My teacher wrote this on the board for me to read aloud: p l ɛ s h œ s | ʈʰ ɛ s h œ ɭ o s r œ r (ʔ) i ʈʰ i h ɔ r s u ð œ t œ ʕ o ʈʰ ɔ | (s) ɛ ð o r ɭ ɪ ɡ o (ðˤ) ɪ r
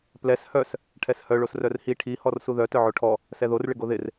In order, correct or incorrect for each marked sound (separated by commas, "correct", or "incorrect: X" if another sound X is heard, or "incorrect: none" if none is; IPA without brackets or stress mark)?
incorrect: h, correct, incorrect: ð